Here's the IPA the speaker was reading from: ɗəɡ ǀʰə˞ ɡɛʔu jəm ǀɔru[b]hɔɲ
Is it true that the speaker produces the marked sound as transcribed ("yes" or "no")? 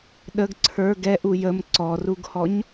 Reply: no